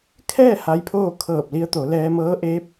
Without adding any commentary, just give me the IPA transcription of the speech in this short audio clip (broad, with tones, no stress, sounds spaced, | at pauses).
kʰ ɛː˥˨ h a˧˥ j pʰ oː˥˨ kʰ ɤː˧˩ p̚ l i˧ ə̯ t̪ o˩˧ l ɛː˧ m ɤː˧˥ ʔ eː˧˥ p̚